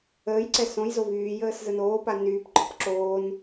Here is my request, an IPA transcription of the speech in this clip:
əː j ǀ ɛ s õ j z o v yː j əː s z ə n oː p a n yː p ɡ͡ǃ ɔ p ǁ oː n

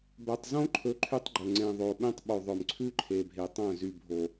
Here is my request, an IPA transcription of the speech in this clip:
b œ˨ tˤ z õ˦ ǃʰ ɵ˨ ǃʰ y˦ tˤ ɡ͡ǃ ɵ˨ ŋ͡ǀ ẽ˨ ðˤ o˨ ɓ ẽ˦ tˤ ɓ o˨ ðˤ œ˨ m ǀʰ ʉ˦ ǃʰ e˨ bʱ e˨ tˤ œ̃˦˨ z y˨ bʱ o˨

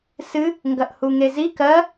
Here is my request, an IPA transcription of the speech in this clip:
s ɨ | ŋ ɡ ɐ ʔ h u ŋ e z i k ɜ

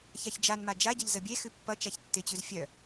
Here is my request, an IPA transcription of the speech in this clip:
ç a ç d͡ʒ a n m a d͡ʒ a ɟ ʌ ʎ z ə bʲ e x ʉ pː ʌ t͡ʃ a ç tː ɪ t͡ɕ ʉ z fʲ œ

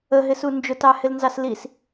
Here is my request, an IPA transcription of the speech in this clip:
ə ɦ ɪ s u n d͡ʒ ʊ t ɑ h ɪ l n z ɑ s l i s

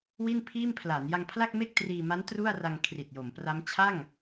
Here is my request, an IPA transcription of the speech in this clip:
w i˥˩ n pʰ iː˥˩ m pʰ l a˩˦ n j a˧ ŋ pʰ l a˥˩ k̚ m e˥˩ k̚ t r iː˧ m a˦˥ n t r u˥˩ a̯ r a˧ ŋ kʰ r i˨˩ t̚ j o˩˦ m p r a˦˥ m t͡ɕʰ a˥˩ ŋ

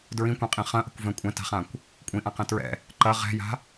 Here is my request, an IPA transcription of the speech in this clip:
d ɹ ĩ kʷ ɛ̃ qʼ ĩ χ ɐ̃ ʔ ə̤ kʷ v ɛ̃ kʷʼ ɛ̃ t a̤ χ ã kʷ | kʷʼ ĩ ʔ ã q ɛ̃ t ɹ ɛ̰ | ǃ ɐ ʁ ɛ̤ j a̤

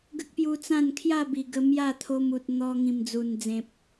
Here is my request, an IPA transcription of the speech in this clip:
ɡ ə˦ k̚ p j u˧ t͡s ã˥˧ n kʰ j a˥˧ b i˨˩ ɡ ə˧ m j a˥˧ t̪ʰ o˧ m u˨ t̚ n̪ ɔ˧ ŋ ĩ˨˩ m d͡z u˨˩ n d͡z ẽ˨ p̚

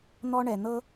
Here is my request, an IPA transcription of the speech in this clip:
n̪ ɔ˦ ɳ ɛ˩ n̪ ɤ˦

